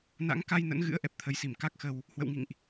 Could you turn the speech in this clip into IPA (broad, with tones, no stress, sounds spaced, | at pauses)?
n a̰˧˥ ŋ k a˧ j n ə̰˧˥ n ɣ ɨ̰˧˥ ə̯ ʔ ɛ˨˩ p̚ t̪ʰ ə˨˦ j s i˧˩ m k a˦˥ k̚ x ə˧ w | h w ə̰˧˨ w ŋ ḭ˧˨ ŋ ʔ